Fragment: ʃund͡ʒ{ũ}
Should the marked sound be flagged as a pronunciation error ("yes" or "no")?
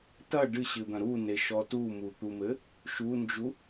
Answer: yes